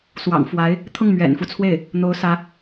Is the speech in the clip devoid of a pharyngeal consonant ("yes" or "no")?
yes